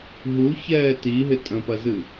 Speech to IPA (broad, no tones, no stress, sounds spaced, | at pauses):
ɦ u ç ɛː t i ɦ ɪ tʼ ə̃ p ɐ z ɨ